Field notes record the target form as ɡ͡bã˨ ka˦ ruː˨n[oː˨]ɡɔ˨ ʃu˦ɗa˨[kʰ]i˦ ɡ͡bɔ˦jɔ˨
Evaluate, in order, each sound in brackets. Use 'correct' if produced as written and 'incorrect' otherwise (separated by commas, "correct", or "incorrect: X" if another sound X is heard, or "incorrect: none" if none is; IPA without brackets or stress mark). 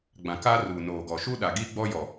correct, incorrect: ɡ